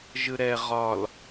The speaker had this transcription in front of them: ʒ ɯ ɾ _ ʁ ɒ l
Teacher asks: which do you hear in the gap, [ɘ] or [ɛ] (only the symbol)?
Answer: ɛ